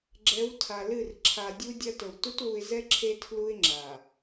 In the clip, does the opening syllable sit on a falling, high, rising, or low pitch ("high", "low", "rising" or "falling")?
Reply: rising